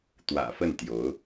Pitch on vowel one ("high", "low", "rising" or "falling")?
low